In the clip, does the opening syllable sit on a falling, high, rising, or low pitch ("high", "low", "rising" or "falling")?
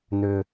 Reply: low